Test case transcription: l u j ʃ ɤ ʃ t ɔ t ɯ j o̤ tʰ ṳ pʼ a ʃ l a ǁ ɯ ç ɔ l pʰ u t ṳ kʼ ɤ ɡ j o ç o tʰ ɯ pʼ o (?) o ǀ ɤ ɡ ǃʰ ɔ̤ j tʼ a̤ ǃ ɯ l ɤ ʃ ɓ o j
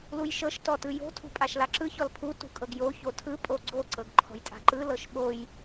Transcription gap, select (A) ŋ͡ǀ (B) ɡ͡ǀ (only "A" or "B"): B